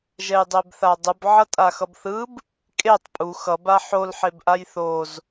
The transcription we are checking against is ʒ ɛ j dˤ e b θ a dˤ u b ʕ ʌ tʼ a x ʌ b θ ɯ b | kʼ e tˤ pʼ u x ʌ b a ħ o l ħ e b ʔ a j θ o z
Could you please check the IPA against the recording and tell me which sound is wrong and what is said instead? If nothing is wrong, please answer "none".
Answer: none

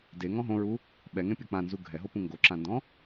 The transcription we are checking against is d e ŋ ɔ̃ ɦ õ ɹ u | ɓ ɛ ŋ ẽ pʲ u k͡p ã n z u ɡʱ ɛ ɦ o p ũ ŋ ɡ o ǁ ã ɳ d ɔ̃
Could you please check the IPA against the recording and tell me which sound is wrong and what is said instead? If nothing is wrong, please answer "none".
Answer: ɳ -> n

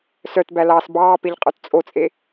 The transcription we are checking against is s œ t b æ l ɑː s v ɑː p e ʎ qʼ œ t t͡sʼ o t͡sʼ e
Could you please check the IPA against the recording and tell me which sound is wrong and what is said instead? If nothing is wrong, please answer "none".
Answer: v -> b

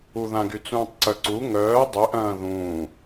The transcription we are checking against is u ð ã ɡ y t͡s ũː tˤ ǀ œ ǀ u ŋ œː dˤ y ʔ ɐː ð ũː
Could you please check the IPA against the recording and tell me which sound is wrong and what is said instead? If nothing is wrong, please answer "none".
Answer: ɐː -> ɐ̃ː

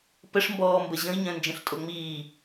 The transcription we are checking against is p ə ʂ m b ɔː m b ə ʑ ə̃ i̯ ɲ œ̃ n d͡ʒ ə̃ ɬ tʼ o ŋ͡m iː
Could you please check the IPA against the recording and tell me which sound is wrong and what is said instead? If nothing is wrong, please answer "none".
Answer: none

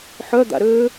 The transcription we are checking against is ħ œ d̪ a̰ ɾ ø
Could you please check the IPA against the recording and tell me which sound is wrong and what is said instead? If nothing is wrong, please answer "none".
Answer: none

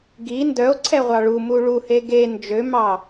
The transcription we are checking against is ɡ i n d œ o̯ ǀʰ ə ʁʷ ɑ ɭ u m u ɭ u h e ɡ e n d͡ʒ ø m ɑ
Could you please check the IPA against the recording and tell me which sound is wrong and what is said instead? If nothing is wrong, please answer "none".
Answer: ə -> ɛ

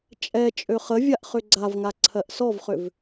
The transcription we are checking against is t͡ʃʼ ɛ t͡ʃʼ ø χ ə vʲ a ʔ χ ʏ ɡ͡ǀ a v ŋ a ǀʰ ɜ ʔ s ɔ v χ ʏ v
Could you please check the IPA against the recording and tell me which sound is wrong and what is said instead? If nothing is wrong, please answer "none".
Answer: none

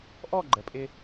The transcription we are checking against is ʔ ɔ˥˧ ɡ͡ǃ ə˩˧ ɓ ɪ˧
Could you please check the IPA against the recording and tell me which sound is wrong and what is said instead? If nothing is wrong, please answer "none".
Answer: ɓ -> pʼ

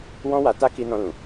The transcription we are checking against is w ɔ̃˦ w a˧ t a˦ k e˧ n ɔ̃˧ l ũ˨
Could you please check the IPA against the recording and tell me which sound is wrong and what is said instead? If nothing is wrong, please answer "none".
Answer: e˧ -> i˧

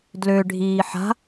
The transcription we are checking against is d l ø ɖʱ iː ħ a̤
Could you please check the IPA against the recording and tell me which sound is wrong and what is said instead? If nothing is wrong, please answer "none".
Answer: none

